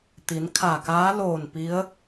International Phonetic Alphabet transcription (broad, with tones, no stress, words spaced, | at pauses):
t̪i˩˧n kʰa˧˩kaː˧˥ loː˧˩n pi˧˥ə̯